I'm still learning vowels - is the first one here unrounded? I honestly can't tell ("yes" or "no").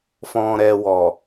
no